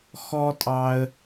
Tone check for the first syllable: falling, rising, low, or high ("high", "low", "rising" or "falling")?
high